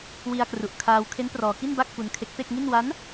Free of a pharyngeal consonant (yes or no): yes